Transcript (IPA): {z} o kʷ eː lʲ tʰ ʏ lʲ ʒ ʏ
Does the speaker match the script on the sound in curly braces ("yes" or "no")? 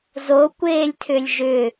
yes